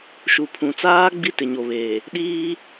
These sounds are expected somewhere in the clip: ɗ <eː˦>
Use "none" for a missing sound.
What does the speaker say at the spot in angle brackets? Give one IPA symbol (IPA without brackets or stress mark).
iː˦